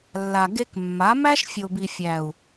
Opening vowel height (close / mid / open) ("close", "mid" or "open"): open